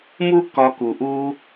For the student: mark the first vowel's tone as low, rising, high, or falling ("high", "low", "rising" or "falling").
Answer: high